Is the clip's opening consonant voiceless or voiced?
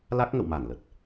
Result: voiced